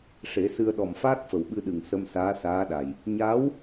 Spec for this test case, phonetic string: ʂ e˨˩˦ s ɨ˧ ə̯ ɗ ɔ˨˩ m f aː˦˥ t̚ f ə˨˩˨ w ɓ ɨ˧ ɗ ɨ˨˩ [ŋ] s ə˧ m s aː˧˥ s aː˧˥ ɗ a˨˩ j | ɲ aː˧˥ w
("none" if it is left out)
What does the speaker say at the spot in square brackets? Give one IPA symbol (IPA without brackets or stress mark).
ŋ